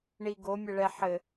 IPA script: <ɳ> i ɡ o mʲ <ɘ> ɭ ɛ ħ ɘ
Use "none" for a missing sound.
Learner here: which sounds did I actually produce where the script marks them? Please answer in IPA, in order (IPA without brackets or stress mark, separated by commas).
ɳ, ɛ